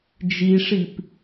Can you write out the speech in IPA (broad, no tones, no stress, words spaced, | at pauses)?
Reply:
d͡ʒiʂip